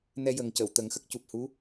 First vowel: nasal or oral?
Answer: oral